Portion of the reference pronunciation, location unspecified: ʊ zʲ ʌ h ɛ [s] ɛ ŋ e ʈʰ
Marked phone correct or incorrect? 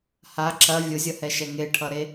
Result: incorrect